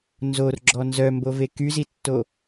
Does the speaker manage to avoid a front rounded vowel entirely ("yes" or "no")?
no